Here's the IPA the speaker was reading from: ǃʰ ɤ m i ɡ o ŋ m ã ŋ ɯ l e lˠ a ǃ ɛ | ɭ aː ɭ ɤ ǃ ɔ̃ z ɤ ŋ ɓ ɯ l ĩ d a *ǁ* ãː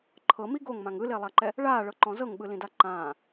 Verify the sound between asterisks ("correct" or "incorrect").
incorrect